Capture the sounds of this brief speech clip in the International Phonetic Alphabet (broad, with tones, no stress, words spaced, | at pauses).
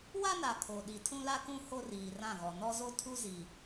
wa˦na˨ kʰo˨ɗi˨ tʰũ˦la˦kũ˦ ho˦riː˨rã˦˨ɣɔ˨ nɔ˦zo˦ tʰu˦zi˨